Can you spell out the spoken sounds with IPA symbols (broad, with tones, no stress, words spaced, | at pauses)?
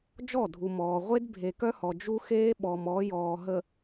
d͡ʒɔ˦˨dʱu˨mɔː˨ ʁʷe˦d bʱe˨kœ˦hɔ˨ d͡ʒu˦xeː˦ ɓɔ˨mɔ˨˦ jɔː˨ɦə˨